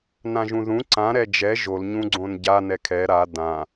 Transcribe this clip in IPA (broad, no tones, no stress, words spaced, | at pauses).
nãʒũðũ ǀã ɾɛd͡ʒɛ ʒol ɲũɡ͡ǀõnɟa nɛkʰɛ ɾa dã